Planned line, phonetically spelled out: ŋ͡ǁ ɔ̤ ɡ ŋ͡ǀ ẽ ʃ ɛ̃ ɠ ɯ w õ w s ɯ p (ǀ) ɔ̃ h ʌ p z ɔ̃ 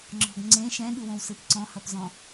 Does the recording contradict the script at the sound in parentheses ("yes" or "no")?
no